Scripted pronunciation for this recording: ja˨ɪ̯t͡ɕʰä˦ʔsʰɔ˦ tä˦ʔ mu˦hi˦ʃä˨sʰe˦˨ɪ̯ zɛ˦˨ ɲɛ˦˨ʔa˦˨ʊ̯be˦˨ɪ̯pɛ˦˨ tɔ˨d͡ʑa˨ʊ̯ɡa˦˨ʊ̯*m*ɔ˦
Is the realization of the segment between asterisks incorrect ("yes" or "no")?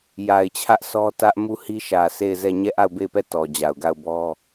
yes